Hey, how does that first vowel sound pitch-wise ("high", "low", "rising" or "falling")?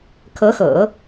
rising